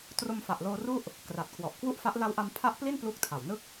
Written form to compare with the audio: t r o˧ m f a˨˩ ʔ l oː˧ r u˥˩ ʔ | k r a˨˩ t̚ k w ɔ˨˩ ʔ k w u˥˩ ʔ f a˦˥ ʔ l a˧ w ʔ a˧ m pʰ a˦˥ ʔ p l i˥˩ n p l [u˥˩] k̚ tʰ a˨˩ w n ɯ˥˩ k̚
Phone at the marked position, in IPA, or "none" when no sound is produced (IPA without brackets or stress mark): u˦˥